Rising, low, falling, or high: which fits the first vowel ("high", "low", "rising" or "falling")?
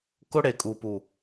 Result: high